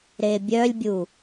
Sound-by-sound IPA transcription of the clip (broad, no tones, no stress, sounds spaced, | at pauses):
ɾ e bʲ œ lʲ bʲ u